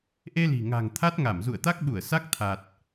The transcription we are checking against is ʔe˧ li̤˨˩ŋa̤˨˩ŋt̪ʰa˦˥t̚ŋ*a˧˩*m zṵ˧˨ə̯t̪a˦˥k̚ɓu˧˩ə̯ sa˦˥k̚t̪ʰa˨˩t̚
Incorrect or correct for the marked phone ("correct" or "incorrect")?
correct